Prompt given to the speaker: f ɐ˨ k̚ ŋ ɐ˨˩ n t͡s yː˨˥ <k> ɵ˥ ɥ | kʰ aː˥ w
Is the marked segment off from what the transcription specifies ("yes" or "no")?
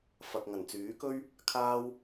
no